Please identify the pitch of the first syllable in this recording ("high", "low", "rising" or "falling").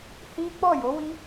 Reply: high